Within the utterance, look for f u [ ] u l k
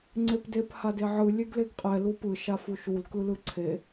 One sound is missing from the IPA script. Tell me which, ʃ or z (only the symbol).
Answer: ʃ